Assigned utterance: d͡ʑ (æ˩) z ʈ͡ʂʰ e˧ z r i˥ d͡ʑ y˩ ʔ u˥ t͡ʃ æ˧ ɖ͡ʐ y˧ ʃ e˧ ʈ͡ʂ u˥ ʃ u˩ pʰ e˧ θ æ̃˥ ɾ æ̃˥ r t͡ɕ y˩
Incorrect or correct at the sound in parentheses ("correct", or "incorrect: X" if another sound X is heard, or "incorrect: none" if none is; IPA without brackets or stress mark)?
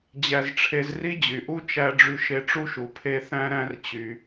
incorrect: æ˧